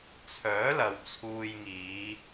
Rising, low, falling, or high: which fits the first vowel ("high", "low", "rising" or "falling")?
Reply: rising